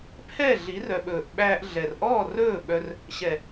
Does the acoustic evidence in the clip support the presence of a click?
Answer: no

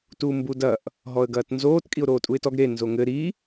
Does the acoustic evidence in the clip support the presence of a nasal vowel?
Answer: no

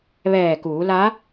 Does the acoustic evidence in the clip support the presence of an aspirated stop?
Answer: no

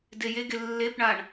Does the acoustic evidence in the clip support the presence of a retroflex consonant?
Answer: yes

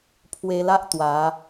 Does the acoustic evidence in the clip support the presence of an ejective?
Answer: no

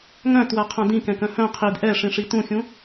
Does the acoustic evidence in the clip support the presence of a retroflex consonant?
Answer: yes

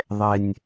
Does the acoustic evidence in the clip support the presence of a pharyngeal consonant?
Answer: no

